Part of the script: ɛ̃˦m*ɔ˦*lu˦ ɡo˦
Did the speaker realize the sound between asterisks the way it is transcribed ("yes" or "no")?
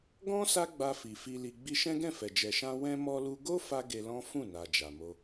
yes